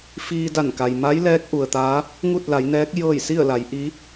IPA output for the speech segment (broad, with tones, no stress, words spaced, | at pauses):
fiː˧da˧˩nka˩j ma˧˥jlɛː˧˥k̚ ʔu˩ə̯t̪aː˧˥ | ŋu˥˨t̚la˩˧jnɛː˧˥k̚ jɤː˥˨j si˥˨ə̯la˩˧jʔi˧˥